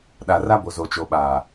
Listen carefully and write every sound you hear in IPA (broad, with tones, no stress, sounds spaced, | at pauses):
ɗ a˨ r a˦ b o˨ z o˨ t͡ʃ o˨ ɓ aː˨